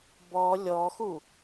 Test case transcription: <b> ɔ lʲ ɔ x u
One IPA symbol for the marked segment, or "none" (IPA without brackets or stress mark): b